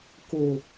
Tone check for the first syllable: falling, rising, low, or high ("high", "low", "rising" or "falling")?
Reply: low